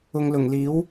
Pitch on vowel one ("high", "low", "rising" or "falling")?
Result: low